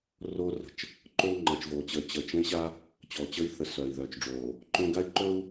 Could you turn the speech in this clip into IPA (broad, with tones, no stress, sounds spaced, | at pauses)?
r oː˦ r ə̤˨ t͡ʃ | ǃ oː˦ ŋ͡ǃ əː˨ t͡ʃ v oː˨ t͡ɕ əː˨ t͡ɕ ə˨ t͡ʃ ə̃˦ i̯ ɕ a˦ | t͡ɕ ɔ˨ t͡ɕ əː˦ i̯ θ ə˨ s œː˨ i̯ ð œː˨ t͡ʃ ɖ͡ʐ oː˨ | ǃ õ˦ ɡ a˦ i̯ ǃ ɵ˦ u̯